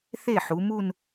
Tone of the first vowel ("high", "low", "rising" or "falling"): falling